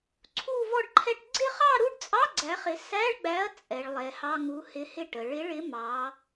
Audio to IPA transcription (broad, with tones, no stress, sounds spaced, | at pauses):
ǀʰ u˥˧ v ɔ˥˧ ɖ ǃʰ ɛ˥˧ ʈ ɡ͡ǀ ɪ˥˧ χ ɑ˥˧ ɾ u˥˧ ɖ t͡sʼ ɑ˧˥˧ ɡ͡ǀ æ˨˥ χ ɪ˨˥ s æ˧˥˧ ɭ ɡ͡b æ˨˥ ɐ̯ t͡sʼ ɛ˩˧ ɭ lˠ ɛ˩˧ h ɑ˧˥˧ ŋ u˨˥ h ɪ˨˥ h ɪ˥˧ ʈ ə˩˧ ɭ ɪ˨˥ ɭ ɪ˨˥ m ɑ˩˧